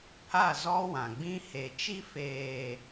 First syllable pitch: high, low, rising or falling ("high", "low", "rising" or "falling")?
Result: falling